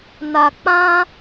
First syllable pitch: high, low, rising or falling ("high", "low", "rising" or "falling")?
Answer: low